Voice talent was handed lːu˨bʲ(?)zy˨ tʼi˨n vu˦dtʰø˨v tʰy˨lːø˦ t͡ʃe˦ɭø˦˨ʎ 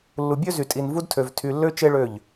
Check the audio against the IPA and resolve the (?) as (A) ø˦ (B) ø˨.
A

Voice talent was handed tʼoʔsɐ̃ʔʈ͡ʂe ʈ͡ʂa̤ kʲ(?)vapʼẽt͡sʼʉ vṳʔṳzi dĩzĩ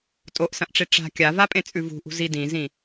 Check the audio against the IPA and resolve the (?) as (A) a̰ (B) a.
B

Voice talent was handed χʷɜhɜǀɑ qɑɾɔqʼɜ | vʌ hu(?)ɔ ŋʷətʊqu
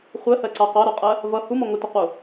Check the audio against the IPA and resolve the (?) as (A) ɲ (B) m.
B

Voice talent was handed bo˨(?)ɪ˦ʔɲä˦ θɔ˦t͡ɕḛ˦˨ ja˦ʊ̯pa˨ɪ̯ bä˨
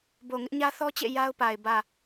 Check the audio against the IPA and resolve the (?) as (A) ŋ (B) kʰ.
A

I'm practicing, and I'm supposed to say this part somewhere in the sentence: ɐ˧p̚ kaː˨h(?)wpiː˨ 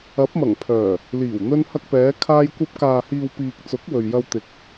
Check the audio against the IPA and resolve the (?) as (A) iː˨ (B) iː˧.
A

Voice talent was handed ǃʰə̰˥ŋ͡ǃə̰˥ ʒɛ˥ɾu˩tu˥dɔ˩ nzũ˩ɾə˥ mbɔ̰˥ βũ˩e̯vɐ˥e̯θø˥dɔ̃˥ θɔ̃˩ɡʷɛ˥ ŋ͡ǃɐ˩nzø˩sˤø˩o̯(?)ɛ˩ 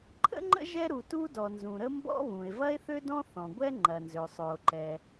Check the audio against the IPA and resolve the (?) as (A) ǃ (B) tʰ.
A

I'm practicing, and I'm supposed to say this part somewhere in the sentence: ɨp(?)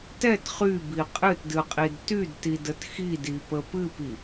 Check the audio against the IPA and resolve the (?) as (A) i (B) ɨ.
A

